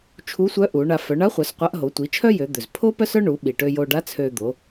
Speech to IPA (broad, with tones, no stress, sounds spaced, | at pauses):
t͡ʃʰ u˧˥ sʷ œ˧˥ ʔ u˩˧ ɳ a˩˧ f œ˩˧ ɳ a˧˥ χʷ œ˩˧ s qʷ a˧˥ ʔ ɦ o˩˧ tʷ i˩˧ t͡ʃʰ œ˥ j ø˩˧ d̪ ø˩ z pʰ o˥ p œ˥ s œ˥ ɳ u˩˧ ɓ i˩ ʈ ø˧ j o˧ ɖ a˧˥ t͡sʰ ø˧ d̪ o˩˧